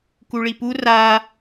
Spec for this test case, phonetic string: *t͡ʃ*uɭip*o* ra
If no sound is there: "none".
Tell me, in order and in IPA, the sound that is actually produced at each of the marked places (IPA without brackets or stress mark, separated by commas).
k, u